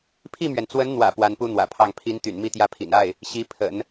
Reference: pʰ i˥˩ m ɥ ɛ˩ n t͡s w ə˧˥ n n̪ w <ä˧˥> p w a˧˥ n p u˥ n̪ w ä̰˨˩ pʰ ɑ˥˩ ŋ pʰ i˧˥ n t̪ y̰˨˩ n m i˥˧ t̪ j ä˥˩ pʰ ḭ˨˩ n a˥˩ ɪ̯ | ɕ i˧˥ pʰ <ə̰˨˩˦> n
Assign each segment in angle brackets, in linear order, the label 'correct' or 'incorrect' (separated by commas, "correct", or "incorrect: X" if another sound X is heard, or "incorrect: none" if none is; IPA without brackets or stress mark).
incorrect: ä̰˨˩, correct